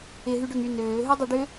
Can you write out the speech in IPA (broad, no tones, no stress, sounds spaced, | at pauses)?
ɪ ɦ y ɖ ø ŋ y n øː ɦ ø dˤ ʏ ɖ ʏ